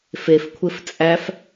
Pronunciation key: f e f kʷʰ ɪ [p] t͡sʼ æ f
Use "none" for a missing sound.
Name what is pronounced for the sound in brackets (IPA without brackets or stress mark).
f